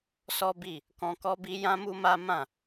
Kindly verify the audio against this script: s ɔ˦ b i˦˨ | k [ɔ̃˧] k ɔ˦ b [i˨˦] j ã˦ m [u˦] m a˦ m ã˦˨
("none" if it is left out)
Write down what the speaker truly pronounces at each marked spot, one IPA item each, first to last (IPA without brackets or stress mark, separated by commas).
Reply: ɔ̃˧, i˦, u˦